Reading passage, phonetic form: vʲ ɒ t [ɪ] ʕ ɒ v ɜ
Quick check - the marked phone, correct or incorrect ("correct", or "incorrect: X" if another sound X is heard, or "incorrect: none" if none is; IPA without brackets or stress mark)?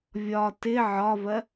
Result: correct